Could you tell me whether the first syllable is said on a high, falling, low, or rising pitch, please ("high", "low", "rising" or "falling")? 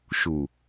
low